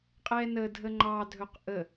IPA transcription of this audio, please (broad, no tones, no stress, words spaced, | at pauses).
qʼɛnə dʱəŋ͡ǃɑ dʱɵqʔə